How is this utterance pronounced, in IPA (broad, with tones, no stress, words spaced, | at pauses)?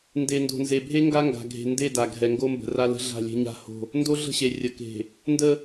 nde˨ndo̤˨nze˨bʱe˦ ŋɡa˦ŋɡa̤˨ ɡʱe̤˨ nde˦˨da˨ɡʱɛ˨ ŋɡo˦mbə̤˨ra˦lə̤˦ ɮa̤˦˨lʲe̤˦ɲa̤˦ho̤˦˨ | ndo˦ɮə̤˦˨ɕe˨ rʲə˨ke̤˨ | ndə˦